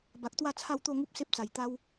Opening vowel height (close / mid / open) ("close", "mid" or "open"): open